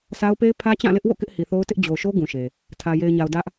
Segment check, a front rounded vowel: absent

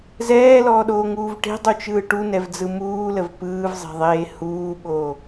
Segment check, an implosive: present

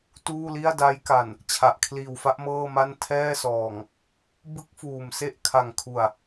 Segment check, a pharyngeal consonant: absent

